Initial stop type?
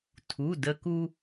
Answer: aspirated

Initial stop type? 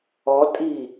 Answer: ejective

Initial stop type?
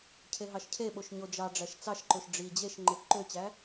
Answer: aspirated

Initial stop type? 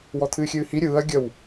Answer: aspirated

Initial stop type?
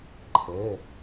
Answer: click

